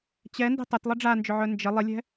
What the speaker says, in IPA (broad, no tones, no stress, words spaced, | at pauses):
t͡ɕɛndi̤ tˤœtlˠə ɖ͡ʐand͡ʒʏʕœ nd͡ʒɪ lˠɪlʲɛ̤